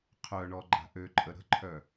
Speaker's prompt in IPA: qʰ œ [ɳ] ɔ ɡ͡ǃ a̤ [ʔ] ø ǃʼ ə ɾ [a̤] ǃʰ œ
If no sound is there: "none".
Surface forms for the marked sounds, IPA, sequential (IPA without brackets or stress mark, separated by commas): ɳ, ʔ, ə̤